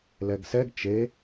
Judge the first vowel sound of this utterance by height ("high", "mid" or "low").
mid